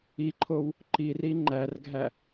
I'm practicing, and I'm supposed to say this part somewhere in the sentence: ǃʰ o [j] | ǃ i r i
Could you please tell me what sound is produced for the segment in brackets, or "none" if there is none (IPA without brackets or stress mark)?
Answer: w